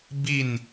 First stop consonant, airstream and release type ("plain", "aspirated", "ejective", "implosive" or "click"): plain